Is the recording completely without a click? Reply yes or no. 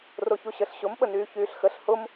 yes